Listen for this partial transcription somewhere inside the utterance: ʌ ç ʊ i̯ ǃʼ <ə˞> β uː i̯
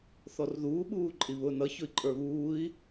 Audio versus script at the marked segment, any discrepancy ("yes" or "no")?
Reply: no